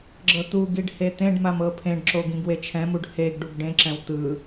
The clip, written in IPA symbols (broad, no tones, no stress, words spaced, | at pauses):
ɡ͡ǁɤt̪uɡiɖ het̪ẽɖmam ɤpʰẽɖǁo ɡĩɡwet͡ʃʰɛ̃muɖ heɡɖuɡ ɖẽǁɛ̃w t̪ɯ